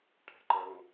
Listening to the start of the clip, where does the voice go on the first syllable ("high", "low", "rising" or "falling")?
low